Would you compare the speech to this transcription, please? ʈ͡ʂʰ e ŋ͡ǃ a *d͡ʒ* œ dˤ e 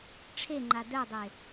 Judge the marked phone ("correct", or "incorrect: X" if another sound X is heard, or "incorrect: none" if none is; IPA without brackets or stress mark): incorrect: d